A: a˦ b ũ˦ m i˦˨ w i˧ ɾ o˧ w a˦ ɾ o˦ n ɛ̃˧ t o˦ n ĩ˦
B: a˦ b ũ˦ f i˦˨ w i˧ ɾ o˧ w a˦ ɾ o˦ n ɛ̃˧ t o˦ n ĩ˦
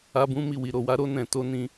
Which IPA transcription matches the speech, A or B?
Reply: A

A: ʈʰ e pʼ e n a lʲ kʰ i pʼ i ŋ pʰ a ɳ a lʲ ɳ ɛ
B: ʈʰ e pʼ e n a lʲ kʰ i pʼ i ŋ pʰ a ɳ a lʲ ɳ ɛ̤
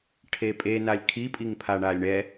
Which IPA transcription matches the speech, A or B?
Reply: A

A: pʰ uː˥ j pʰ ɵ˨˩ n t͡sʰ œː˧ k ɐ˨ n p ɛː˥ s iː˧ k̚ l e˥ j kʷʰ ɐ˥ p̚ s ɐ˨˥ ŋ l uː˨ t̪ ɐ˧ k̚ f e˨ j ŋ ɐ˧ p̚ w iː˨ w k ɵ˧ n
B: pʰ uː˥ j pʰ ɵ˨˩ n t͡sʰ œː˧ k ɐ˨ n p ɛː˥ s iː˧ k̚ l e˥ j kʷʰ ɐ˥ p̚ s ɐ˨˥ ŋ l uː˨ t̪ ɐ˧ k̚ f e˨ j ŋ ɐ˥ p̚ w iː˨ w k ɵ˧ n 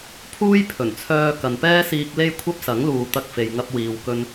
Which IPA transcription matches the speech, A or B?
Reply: A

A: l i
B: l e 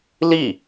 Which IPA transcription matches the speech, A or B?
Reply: A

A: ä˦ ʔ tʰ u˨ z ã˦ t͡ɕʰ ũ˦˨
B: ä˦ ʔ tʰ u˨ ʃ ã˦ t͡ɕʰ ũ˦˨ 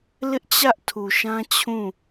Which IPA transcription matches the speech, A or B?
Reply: B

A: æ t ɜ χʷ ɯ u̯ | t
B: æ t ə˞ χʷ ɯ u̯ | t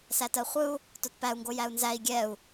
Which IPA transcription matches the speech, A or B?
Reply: A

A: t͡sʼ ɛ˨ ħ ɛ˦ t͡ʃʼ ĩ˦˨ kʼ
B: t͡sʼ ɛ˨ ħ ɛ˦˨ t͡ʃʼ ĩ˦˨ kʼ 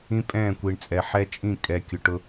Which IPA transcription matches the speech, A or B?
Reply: A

